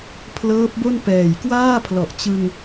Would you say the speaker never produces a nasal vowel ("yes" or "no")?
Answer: yes